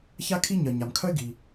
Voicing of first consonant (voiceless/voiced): voiceless